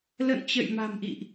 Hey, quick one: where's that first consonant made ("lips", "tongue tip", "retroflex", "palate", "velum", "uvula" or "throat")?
tongue tip